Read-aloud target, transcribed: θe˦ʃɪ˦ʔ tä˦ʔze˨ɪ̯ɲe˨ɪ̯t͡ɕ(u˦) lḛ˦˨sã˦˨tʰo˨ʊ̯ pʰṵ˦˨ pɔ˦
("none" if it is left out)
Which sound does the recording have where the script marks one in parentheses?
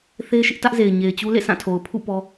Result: u˦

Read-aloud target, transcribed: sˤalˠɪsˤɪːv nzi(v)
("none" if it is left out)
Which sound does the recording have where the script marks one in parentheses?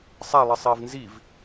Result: v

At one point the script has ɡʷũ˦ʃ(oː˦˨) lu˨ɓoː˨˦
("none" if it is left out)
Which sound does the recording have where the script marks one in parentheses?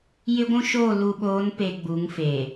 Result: oː˦˨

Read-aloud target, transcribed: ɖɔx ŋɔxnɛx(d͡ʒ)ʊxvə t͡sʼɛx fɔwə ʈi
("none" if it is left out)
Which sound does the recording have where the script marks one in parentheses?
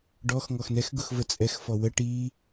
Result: ɡ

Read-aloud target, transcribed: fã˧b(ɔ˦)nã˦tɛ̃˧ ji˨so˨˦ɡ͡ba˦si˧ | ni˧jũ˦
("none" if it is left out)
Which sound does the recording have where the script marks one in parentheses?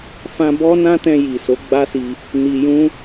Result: ɔ˦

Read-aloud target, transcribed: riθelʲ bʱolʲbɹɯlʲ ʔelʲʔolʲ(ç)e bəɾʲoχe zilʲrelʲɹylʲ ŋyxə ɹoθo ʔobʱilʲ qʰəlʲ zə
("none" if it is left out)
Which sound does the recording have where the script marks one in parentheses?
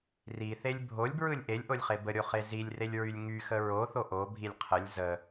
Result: χ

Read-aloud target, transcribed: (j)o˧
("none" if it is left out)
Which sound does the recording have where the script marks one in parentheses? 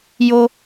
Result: j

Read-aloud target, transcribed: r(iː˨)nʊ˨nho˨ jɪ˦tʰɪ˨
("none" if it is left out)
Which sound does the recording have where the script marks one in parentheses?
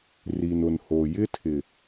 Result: i˨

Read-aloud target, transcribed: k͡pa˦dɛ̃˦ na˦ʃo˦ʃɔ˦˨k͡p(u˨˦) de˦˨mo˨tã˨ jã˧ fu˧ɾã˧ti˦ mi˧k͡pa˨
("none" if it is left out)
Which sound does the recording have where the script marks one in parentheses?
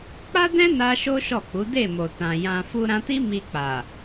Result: u˨˦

